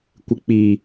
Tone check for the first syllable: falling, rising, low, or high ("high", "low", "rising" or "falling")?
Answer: low